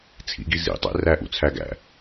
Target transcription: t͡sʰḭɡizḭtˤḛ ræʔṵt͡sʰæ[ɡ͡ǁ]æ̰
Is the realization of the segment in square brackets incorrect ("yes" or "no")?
yes